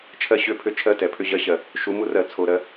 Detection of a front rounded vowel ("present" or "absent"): present